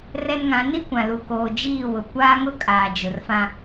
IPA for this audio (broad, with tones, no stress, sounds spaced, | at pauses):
r ɛ˦ n ŋ ã˨˦ n i˦ kʷ ã˨ l u˨ k oː˨ d͡ʒ iː˦˨ w ʊ˨ kʷ aː˦ ŋ ʊ˦ kʼ aː˨ d͡ʒ ʊ˨ r f ã˦